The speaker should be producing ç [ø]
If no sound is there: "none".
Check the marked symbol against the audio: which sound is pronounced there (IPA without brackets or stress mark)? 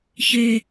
ø